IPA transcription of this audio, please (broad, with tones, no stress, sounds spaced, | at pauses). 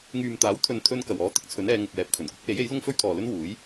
ŋ yː˨ m t̪ aː˨˥ w t̪ʰ ɵ˨ n t̪ʰ ɵ˧ n k ɐ˨˩ w ɔː˨˧ t̪ ɪ˥ k̚ t͡sʰ ɵ˨˥ n ɛː˨˧ ŋ ʊ˨ k̚ w ɛː˨ p̚ kʰ ɵ˨˩ n kʷ ɪ˨˥ k̚ w e˨˥ j e˨˥ j l ʊ˥ ŋ f ɵ˥ ɥ t̪ʰ ɔː˨ l ɵ˥ n w uː˨˥ j